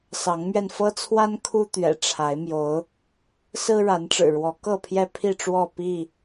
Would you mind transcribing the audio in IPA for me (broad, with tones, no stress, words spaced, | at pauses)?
sɑ˨˦ŋmɥɛ˧nfɤ˦t͡sʰwa˦n kʰu˦t̪ɥɛ̰˨˩ ʈ͡ʂʰa˨˦ɪ̯mjo˨˦ʊ̯ | sɹ̩˦ɻa˨˦nʈ͡ʂɻ̩˨˩ɻwɔ˨˦ kɤ˥˨pʰjɛ˦ pʰi˥˨ʈ͡ʂwɔ˥˨ pi˥˨